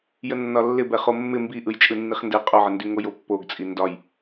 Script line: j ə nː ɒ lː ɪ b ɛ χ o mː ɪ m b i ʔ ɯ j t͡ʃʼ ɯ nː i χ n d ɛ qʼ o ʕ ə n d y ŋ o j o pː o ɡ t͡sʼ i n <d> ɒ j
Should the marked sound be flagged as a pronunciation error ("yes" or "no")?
no